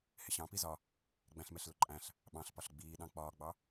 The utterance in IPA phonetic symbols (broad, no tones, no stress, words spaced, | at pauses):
hɪɕɑ̃ pizɒ | ɡ͡bæ̃ɬmɛɬlʊǃʼæ̃ɬ | ɓɑ̃ɬpɒɬ ɡ͡biːɗɑ̃ k͡pɒːɡ͡bɑ